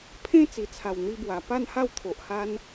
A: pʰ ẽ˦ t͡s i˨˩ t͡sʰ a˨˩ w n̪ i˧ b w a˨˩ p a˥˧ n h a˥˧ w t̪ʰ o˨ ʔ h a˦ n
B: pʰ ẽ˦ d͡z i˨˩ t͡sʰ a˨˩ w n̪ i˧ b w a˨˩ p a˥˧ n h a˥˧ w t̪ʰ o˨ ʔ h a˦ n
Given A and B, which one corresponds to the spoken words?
A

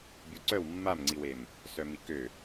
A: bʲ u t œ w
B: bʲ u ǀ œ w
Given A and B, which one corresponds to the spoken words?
B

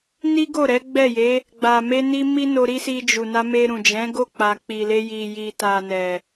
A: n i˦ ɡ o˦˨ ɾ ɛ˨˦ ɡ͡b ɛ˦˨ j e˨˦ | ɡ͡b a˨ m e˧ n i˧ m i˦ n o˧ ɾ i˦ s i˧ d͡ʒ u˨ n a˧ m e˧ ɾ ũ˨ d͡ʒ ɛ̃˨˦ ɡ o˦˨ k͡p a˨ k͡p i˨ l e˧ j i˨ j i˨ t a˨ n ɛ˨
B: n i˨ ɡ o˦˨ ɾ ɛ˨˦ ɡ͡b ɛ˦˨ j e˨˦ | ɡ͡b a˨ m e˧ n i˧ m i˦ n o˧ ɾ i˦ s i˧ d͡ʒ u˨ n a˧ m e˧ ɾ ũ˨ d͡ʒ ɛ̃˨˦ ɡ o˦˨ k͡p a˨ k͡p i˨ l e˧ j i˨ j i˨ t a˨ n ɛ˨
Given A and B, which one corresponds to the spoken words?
A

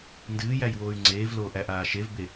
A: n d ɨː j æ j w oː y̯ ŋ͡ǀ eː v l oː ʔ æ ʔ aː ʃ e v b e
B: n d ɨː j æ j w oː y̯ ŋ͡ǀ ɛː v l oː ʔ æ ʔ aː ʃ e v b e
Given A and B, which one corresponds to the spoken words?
A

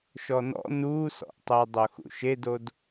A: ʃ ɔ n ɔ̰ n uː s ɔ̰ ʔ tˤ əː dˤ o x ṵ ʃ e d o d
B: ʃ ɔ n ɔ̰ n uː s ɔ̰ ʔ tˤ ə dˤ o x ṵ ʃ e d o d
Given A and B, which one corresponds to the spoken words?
A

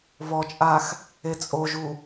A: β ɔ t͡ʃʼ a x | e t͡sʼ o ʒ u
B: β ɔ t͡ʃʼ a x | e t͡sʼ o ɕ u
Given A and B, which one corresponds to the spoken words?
A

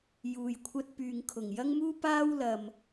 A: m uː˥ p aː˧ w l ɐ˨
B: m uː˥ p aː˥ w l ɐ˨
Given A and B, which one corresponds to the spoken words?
B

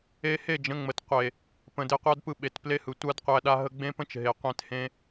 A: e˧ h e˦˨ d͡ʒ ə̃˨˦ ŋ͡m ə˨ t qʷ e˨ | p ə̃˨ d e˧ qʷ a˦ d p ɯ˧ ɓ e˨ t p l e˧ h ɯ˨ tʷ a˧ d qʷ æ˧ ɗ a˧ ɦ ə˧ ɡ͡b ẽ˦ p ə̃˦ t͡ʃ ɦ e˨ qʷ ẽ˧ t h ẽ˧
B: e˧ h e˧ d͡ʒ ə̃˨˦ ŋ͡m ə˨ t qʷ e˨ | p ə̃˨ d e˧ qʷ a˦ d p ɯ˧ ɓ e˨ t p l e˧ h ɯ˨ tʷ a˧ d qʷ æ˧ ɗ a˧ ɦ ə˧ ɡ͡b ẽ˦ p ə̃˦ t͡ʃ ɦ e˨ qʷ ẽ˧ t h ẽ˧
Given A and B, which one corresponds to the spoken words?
A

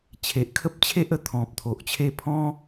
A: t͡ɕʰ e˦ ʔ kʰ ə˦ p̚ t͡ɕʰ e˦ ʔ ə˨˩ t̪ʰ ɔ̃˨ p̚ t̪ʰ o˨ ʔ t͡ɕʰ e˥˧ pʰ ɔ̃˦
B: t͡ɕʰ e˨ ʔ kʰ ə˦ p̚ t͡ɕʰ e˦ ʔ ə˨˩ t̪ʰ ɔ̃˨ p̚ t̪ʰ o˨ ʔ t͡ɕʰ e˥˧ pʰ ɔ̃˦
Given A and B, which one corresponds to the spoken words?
B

